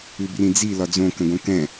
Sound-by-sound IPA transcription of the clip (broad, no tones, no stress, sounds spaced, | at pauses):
ʉ b r ĩ d͡z i l ɒ d͡z õ k ə̃ ɡ õ k ɛ̃